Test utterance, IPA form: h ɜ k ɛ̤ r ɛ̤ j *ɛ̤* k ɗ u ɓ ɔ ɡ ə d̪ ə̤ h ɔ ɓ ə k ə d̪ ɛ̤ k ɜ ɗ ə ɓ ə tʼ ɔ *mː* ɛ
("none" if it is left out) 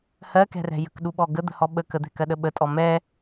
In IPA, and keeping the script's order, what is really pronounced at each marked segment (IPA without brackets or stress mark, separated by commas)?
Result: ə̤, m